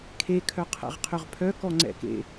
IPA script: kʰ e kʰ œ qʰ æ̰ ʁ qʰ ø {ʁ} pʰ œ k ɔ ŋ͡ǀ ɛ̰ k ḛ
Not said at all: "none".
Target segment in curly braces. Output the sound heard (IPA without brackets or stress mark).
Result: ʁ